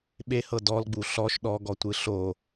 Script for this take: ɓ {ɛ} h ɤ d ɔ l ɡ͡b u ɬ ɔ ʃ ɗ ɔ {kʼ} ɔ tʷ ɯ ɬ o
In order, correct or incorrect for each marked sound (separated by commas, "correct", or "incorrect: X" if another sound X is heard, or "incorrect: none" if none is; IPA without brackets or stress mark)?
incorrect: e, incorrect: ɡ